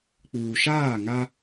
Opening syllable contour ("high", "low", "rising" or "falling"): low